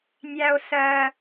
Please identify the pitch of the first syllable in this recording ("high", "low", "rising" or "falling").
low